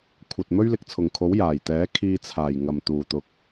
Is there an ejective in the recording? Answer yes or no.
no